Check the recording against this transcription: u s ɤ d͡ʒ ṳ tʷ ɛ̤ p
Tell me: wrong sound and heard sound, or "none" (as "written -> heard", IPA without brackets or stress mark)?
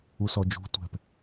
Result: ɤ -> ɔ